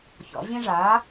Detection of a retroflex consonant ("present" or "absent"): present